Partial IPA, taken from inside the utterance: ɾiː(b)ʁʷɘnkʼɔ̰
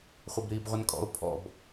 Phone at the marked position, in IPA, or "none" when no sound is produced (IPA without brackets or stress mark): b